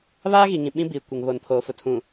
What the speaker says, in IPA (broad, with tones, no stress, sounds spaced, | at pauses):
β aː˦ ɣ i˨ ŋ ĩ˨ ɓ ĩ˦ b iː˨ kʷ ɪ˨ ŋ β oː˨ n pʰ oː˨ f ʊ˨ tʰ ũ˨